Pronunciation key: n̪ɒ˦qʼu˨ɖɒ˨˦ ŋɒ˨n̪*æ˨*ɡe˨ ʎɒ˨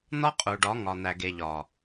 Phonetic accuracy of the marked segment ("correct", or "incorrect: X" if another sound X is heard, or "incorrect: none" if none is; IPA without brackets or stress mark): correct